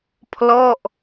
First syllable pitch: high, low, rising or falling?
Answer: falling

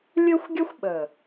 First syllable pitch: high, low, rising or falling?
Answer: high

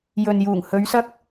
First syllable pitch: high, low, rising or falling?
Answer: low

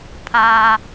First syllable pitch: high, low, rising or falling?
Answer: low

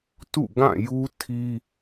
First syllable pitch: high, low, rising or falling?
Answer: falling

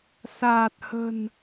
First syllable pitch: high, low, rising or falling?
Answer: low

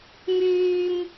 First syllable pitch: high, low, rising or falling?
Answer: high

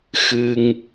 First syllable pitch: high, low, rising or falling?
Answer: high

